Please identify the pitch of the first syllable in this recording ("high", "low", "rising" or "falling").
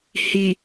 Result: low